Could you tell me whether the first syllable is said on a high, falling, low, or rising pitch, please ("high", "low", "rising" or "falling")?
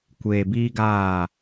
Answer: low